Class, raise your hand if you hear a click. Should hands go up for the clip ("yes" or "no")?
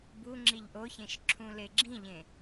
yes